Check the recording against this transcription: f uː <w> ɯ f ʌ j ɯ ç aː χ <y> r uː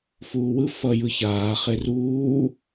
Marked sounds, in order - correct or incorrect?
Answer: correct, incorrect: e

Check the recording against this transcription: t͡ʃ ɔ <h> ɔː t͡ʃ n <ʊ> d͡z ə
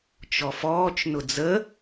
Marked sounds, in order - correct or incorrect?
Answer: incorrect: f, correct

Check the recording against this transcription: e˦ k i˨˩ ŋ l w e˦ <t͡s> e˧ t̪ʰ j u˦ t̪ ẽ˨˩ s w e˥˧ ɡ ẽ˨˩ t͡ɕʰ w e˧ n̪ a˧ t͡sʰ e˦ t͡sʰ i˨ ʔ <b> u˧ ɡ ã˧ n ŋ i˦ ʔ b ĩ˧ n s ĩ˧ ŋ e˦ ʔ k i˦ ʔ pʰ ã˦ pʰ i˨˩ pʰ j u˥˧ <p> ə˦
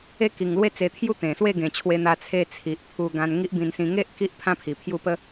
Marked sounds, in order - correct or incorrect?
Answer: correct, incorrect: pʰ, correct

